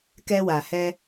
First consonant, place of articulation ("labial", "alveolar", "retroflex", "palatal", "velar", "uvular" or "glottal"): velar